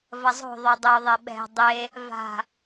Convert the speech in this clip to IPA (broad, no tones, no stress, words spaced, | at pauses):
vɐzˤo̤ ðˤodˤo ðˤɛɓɛ̤ dˤe | va̤